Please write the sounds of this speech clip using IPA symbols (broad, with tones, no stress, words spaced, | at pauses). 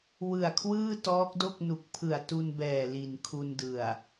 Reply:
wɯ˨˩a̯kʰwɯː˥˩ tɔː˦˥k̚do˥˩k̚nu˨˩k̚ pʰɯ˨˩a̯tu˧nbɛː˨˩ li˨˩nkʰu˧ndɯ˨˩a̯